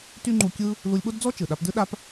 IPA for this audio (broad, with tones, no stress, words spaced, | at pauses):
ty˥ŋ͡ǃu˧ kʲɯ˥ | lu˧lʲɓo˥dd͡zɔ˥ t͡ʃɯ˩ɗa˧pdɯ˥ ɗa˥p